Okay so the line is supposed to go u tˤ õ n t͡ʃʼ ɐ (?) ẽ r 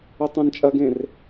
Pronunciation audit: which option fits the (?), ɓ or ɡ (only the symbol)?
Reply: ɡ